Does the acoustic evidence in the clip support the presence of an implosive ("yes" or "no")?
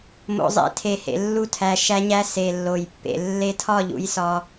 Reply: no